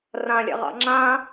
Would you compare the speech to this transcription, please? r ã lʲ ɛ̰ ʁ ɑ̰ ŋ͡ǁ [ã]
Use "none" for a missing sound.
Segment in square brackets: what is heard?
ã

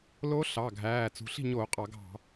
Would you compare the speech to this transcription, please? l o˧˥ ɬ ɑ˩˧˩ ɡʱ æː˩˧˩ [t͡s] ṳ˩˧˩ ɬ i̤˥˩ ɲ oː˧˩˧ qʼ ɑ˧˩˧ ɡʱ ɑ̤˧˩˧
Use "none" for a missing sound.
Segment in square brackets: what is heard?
t͡s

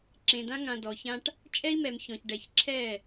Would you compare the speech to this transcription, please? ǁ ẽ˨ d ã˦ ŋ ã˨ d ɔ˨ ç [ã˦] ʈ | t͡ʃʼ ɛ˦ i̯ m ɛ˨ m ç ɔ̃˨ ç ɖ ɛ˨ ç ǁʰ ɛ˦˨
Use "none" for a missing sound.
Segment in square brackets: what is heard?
ã˦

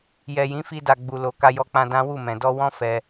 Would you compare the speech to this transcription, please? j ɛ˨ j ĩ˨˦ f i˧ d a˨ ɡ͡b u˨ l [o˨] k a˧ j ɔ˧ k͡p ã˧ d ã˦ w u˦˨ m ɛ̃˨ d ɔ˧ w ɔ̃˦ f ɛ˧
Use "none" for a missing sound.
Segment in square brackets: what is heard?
o˨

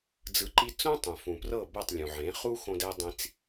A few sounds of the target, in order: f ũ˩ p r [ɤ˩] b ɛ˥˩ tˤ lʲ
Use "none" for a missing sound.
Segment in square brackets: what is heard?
ɤ˥˩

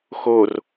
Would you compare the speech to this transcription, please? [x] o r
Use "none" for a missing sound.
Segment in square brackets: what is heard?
x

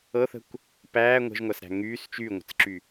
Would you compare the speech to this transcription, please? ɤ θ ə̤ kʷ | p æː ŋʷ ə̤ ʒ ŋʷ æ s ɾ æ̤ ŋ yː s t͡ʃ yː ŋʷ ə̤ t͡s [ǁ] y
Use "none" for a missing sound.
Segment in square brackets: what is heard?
ǁ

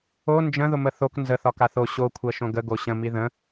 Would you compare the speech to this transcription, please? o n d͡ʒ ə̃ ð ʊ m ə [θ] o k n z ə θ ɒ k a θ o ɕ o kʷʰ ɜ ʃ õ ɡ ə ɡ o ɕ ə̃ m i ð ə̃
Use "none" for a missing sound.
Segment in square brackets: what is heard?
θ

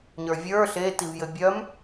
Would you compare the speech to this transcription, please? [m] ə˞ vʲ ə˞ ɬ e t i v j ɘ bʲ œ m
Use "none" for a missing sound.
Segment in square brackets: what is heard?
ɲ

